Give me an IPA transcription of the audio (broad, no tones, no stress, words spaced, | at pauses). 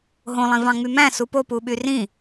ɦõlˠĩvɑ̃ŋ͡my mæ̃su popuɓy rĩ